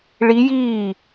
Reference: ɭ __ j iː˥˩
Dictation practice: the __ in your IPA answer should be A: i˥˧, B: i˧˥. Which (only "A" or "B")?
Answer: B